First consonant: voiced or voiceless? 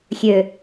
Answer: voiceless